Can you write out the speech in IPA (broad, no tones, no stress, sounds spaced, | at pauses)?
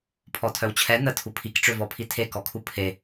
pʰ ɔ tʰ œ w t͡ɕʰ ɛ n̪ ə tʰ u pʰ i k ʈ͡ʂ ø v ɔ pʰ i tʰ e k ɔ kʰ u pʰ e